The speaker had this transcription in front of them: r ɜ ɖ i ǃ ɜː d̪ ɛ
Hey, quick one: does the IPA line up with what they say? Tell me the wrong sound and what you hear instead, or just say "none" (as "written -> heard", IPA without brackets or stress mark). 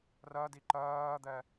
ɖ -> d